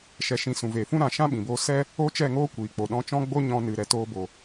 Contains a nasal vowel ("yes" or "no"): yes